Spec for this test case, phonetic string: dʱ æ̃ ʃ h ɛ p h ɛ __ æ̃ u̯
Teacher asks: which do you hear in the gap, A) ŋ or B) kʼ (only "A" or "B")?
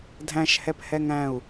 A